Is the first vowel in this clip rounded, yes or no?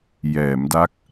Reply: no